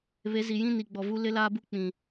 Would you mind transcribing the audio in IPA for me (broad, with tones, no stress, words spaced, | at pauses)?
βe˨˦zi˨ jĩ˦ni˨ɡ͡bɔ˨vu˦ lɪ˦laː˦bu˦ k͡pĩ˨